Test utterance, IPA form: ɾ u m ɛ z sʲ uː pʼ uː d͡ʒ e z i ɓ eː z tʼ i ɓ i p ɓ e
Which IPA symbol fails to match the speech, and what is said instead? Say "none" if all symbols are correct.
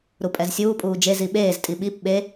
m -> pʼ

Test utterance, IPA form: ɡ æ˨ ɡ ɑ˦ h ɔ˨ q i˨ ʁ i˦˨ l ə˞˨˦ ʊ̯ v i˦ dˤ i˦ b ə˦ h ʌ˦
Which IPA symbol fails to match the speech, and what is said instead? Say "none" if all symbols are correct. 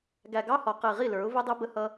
none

